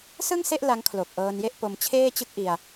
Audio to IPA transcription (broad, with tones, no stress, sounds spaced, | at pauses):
s ɯ˥˩ ŋ s e˥˩ ʔ l a˦˥ ŋ kʰ l o˨˩ k̚ ʔ ɤː˧ n j e˥˩ ʔ p o˧ m t͡ɕʰ eː˥˩ t͡ɕ ɯ˥˩ k̚ ʔ i˧ a̯